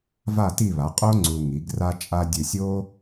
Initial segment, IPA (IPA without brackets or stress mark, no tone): v